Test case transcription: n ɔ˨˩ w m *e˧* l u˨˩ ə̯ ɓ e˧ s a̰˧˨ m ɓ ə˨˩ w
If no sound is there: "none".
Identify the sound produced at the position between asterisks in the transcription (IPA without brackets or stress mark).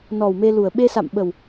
e˧